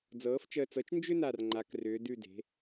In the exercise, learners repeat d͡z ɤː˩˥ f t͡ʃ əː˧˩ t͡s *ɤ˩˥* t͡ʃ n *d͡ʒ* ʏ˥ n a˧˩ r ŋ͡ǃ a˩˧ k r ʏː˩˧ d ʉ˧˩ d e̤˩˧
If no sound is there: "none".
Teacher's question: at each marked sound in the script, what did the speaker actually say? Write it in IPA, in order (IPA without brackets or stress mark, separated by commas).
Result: ɤ˩˥, d͡ʒ